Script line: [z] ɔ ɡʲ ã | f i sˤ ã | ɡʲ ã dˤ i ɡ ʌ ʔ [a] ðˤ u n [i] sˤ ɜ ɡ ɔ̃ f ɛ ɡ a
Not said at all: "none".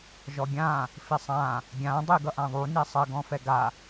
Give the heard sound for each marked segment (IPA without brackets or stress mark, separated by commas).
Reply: ʒ, ã, i